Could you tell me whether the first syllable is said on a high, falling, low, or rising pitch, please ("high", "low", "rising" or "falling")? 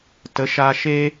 rising